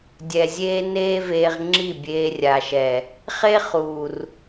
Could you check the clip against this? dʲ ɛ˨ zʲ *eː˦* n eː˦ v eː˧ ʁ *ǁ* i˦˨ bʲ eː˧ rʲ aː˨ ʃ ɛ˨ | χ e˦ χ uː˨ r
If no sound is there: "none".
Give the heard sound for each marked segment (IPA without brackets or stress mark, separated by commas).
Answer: eː˦, ŋ͡ǁ